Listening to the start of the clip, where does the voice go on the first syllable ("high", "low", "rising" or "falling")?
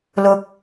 low